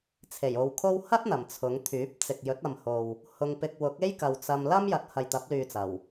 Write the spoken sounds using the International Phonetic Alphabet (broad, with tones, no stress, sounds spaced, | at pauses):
t͡sʰ e˨˩ j o˨ w kʰ o˥ w h ɐ˥ t̚ n̪ ɐ˨˩ m t͡sʰ ʊ˨˧ ŋ t̪ʰ yː˨˥ p̚ t͡s ɪ˨ k̚ j ɵ˨˥ t̚ ɐ˨ m h o˨ w | h ʊ˧ ŋ p ɪ˧ k̚ w ʊ˨˥ k̚ e˥ j k ɐ˨ w t͡s ɐ˧ m l ɐ˥ m j ɐ˨˥ t̚ h ɐ˨ j t̪ ɐ˨˥ p̚ l yː˨ t͡s ɐ˨˩ w